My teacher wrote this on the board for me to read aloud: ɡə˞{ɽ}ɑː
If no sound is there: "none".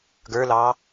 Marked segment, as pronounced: l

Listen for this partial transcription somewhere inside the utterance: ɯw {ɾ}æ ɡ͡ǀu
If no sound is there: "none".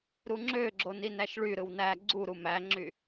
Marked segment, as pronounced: n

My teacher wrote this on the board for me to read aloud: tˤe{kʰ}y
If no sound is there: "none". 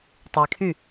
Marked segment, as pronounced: kʰ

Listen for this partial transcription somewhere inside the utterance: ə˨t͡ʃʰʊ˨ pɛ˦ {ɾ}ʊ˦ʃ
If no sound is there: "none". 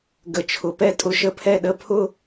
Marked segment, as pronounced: tʼ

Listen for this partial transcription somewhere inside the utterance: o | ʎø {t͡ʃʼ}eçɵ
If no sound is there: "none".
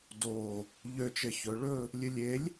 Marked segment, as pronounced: t͡ʃ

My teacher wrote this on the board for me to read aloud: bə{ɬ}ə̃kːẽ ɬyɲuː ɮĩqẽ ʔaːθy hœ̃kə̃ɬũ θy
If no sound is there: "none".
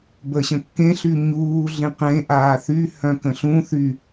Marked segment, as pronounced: ɕ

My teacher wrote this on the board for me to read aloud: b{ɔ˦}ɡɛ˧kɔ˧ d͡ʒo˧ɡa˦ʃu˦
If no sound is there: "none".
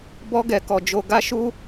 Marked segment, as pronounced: ɔ˦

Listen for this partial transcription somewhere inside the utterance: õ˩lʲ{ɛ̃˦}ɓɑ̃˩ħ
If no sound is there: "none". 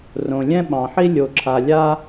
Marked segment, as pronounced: ɛ̃˦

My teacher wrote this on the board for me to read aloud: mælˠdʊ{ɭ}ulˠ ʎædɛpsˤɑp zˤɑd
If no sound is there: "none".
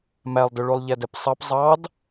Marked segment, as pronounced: ɭ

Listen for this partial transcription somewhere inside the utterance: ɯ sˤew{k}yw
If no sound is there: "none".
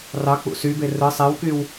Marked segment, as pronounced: k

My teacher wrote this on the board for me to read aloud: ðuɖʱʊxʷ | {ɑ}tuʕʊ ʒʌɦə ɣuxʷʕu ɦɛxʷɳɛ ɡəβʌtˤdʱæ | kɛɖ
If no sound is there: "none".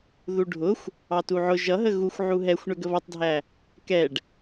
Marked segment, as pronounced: ɑ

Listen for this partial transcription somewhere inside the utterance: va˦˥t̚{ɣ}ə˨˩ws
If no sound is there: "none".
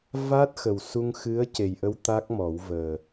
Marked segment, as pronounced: x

